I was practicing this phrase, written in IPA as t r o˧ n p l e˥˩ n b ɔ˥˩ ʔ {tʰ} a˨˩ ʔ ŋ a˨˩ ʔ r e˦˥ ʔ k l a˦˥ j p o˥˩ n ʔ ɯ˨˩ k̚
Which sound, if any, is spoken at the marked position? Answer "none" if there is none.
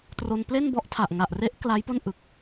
tʰ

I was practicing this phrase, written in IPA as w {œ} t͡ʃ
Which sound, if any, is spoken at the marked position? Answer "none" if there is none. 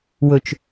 ɵ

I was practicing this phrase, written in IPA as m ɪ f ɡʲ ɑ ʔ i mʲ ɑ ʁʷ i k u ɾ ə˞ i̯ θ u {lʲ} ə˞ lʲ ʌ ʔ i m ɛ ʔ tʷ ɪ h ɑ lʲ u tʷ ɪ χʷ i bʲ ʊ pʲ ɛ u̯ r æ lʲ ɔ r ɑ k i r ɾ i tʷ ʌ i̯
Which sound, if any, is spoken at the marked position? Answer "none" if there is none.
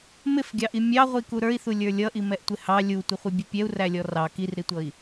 lʲ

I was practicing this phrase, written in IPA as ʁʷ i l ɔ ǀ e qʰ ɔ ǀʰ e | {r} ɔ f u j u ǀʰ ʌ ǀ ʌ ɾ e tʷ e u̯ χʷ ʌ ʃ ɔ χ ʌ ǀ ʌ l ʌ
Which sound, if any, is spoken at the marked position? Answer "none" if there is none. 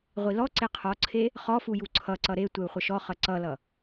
χ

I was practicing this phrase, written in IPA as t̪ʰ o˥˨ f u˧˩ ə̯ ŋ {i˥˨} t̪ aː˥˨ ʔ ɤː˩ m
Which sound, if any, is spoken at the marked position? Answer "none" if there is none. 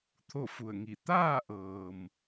i˧˩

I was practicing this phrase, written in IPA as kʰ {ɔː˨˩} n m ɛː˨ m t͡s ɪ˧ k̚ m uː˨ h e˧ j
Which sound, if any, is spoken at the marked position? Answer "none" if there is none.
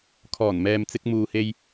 ɔː˨˩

